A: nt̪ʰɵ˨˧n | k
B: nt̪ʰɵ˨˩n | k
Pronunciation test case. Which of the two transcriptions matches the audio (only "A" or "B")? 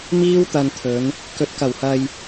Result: A